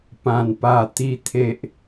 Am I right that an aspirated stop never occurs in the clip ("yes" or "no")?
no